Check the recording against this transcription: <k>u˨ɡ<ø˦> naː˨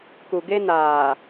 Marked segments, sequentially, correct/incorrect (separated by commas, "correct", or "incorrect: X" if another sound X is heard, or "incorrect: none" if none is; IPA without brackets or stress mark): correct, incorrect: e˦